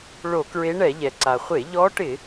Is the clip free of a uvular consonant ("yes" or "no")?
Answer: no